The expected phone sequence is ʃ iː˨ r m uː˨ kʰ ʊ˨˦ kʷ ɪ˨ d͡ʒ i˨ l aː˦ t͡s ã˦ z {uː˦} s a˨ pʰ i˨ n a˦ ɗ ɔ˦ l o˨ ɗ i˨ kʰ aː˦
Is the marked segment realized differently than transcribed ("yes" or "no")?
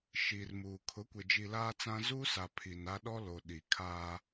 no